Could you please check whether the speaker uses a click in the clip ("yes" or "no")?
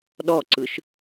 yes